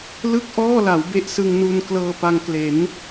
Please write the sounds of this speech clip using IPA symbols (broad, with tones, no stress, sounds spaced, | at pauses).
l ɯ˥˩ k̚ ʔ ɔː˥˩ l a˩˦ w b e˥˩ ʔ s ɯ˧ ŋ n u˧ n k l ɤː˧ p a˧ ŋ k l e˩˦ n